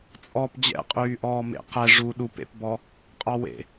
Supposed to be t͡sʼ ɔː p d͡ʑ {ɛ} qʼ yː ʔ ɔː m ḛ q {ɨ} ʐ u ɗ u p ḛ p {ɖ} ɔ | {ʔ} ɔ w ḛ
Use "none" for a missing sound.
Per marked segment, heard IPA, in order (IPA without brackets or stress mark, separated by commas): ɛ̰, ɛ, b, qʼ